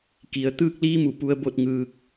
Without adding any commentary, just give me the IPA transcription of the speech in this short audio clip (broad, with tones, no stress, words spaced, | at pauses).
ki˩˧ə̯ t̪ɯː˧k̚liː˧mu˧˩ pu˧ə̯bo˥˨t̚ŋɯː˧k̚